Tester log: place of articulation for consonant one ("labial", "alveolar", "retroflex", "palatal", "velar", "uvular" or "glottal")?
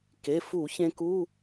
velar